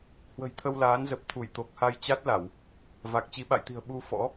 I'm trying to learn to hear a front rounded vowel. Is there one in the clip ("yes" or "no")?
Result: no